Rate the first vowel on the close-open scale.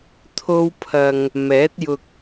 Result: mid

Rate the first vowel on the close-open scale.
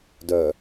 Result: mid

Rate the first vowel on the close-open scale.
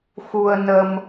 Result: close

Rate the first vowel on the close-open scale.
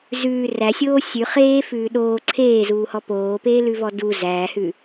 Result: close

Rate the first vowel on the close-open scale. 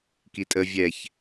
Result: close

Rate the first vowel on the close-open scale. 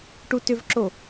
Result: close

